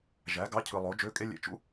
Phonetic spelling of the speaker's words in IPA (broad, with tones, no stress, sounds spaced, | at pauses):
ʒ æ˩˥ ɡ ɑ˧˥˧ cʰ ɯ˨ lˠ o˩˥ d͡ʒ ø˧˥˧ kʼ e˥ lʲ ḛ˧˥˧ t͡ʃ ṵ˥